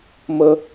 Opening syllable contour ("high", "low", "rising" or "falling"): low